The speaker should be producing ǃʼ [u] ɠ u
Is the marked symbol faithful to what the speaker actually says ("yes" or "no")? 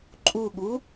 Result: yes